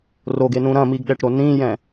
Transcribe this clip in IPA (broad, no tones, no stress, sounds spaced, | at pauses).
r o ɡ e n ũ ɾ ɐ̃ m i ɡ ɗ ɛ ʈ ɾ o n ĩ j ɛ̃